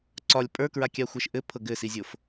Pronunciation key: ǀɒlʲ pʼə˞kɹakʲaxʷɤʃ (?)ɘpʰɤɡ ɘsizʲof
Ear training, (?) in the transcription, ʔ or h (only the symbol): ʔ